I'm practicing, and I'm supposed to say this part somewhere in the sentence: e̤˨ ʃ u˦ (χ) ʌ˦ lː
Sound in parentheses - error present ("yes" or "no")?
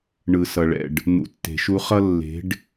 no